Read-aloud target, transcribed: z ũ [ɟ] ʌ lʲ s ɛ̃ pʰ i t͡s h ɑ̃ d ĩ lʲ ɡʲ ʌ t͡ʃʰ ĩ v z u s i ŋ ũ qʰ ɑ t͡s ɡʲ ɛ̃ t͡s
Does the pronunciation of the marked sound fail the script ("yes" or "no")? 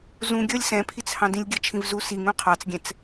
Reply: yes